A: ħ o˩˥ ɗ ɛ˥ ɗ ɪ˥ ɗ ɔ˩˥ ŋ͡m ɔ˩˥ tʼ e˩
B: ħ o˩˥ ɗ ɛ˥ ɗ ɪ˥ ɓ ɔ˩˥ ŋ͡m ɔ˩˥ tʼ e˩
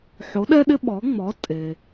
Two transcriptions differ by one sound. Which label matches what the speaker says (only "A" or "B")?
B